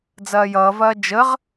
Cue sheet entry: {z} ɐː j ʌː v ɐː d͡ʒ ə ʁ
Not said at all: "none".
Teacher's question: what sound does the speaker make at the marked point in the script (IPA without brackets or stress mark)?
d͡z